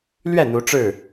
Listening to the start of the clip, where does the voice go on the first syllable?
falling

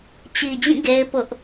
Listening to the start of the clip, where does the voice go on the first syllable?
low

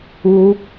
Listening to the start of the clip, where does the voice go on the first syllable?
rising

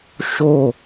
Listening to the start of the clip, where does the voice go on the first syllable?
falling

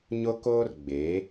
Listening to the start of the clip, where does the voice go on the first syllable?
high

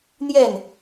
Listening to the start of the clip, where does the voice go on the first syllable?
falling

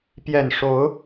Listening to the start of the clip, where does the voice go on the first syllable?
low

